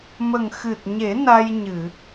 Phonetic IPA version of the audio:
m ə˨˩ ŋ x ɨ˨˩ t̚ ɲ e˨˩˦ n a˧ j ɲ ɨ˨˩˨

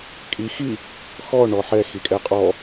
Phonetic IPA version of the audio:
kʼ i x i | x ɔ ɳ ɔ ħ ɛ x i kʼ ɛ qʼ ɔ

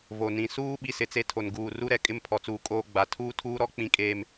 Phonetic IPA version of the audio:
v o˨ n ĩ˨ s uː˦ ɓ i˦ s ɪ˨ t͡s e˦ tʰ o˨ n ɡ uː˨ r u˦ ɾ ɛ˨ kʼ ɪ˦ m pʰ ɔ˨ t͡s uː˨ kʼ oː˦ ɡ͡b a˨ tʰ uː˦ tʰ uː˦ ɾ ɔ˦ k͡p ĩ˨ kʼ eː˨ m

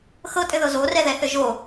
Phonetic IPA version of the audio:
x ɤ tʼ ɘ ð ɤ z o r ɛ ð ɛ θ ɘ ʒ o

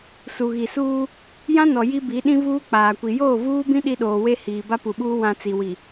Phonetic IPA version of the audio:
s u˨ ɣ i˨ s uː˦ | j ã˦ n ɔ˨ j i˦ b i˨˦ ɗ ĩ˦ v uː˦ k͡p aː˨ kʷ i˨ j oː˦˨ v uː˦ b ĩ˦ ɗ i˦ ɗ oː˨ w e˦ h iː˨ b a˦ p u˨ ɓ uː˦ w ã˨ t͡s i˨ w i˨

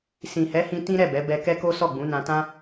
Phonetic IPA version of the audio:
s ĩ˨ h ɛ˨˦ h ĩ˧ t ĩ˦ ɾ ɛ˦˨ b ɛ˨˦ b ɛ˧ k ɛ˦ k o˦ s ɔ˦˨ ɡ͡b ũ˨˦ n ã˧ t ã˦

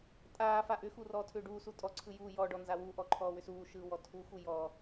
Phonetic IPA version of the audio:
tʼ aː f a ʔ ʏ x u r ɔː tʰ ʏː ɖ uː s u tʼ ɔ ǀʰ ɯ j uː j ɔ ɖ ɔ n z a w u ʔ ɔ ǃʰ ɔː w ʏ s uː ʃ ɯː w ɔ tʰ u x u j ɔ

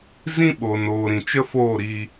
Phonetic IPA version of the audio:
z ĩ˦ ɓ o˨ n oː˨ ɾ ĩ˨ t͡ʃ ə˦ f oː˦˨ ɾ iː˧

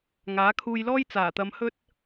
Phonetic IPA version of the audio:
ŋ aː˨˥ kʰ uː˧ j l ɔː˥ j t͡s aː˨˩ t̪ ɐ˨ m h ɵ˧ t̚

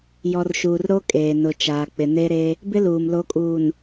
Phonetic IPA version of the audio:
j ɔ˨ r ʃ uː˨ r ɾ o˦ kʼ eː˨ n ʊ˨ t͡ʃ aː˨ k͡p ɪ˨ n e˦ ɾ e˦ | b ɪ˦ l uː˨ m l o˨˦ kʼ uː˨ n

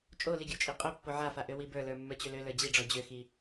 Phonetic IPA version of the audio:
t͡ʃʼ o l i ɡʲ ɔ t͡ʃʼ i qʼ ø pː o ʕ a f a ʔ ø w i b ə˞ l ə˞ mː ə˞ t͡ɕ ø l ø l ə˞ d͡ʑ i ɖ͡ʐ ɔ d͡ʑ ø x i

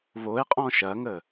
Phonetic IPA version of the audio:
β o e̯ qʼ ɔ̃ ʃ ɐ ŋ ə

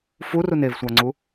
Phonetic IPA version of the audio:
f u r u n e v sʷ a ŋ͡ǀ u

